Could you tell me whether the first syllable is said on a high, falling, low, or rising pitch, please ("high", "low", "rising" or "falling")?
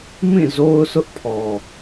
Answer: falling